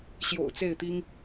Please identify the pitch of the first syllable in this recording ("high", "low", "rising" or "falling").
low